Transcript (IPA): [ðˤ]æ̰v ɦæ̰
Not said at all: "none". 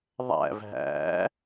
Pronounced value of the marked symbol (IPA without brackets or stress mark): ðˤ